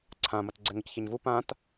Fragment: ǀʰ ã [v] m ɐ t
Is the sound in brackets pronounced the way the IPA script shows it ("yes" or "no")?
no